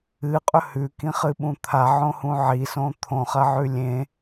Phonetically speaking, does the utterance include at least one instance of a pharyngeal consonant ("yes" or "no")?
yes